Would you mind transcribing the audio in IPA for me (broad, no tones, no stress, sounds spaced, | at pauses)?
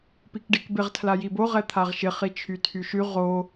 p i k ɖ i k b ɪ ʁ tʰ l a j i b o ʁ ɛ t̪ʰ a ʁ ʃ ɪ χ i t͡ʃʰ y tʰ y ʃ y ʁ o